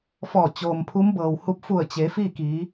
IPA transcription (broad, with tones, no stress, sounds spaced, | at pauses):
f ɔː˧˩ t͡ɕ oː˩ m pʰ u˧˥ m b ɤː˩ w h u˧˥ p̚ f u˧˩ ə̯ t͡ɕ e˩˧ f iː˥˨ k iː˩˧